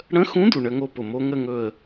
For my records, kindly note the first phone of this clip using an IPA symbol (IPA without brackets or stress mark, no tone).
ɽ